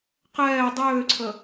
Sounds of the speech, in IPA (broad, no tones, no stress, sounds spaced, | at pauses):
q ɛː dˤ øː ǀʰ ə